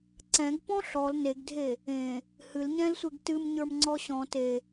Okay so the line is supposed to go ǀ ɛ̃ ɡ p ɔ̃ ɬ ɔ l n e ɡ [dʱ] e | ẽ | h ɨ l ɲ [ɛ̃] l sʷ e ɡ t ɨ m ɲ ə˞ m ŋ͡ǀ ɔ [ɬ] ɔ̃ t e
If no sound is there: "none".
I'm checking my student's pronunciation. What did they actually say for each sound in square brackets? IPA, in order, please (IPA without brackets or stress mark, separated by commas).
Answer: dʱ, ɛ̃, ɕ